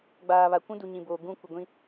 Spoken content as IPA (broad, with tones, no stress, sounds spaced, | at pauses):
ɡ͡b aː˨ β a˨ kʷ ũ˦ d u˨ ɲ ĩ˨ b oː˨ ɡ ũ˦˨ kʷ ɪ˨ ɡʷ ĩ˦